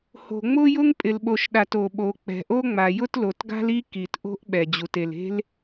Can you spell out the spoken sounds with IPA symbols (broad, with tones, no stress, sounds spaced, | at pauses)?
h o̤˩ ŋ͡m ʊ˥ j ʊ˥ ŋ pʼ ɪ˩ l ɓ o˩ ʃ ɗ a˩ t o˩ ɓ o˩ k͡p ɛ̤˩ ʔ o˥ ŋ͡m a˩ j ʊ˥ t l o˩ t ɡ a̤˥ l i˥ k i˩ t ʔ o̤˥ ʔ ɓ ɛ˩ d͡ʑ u˩ t e˩ l e̤˥ l